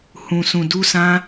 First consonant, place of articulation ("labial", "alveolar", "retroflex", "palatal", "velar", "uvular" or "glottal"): glottal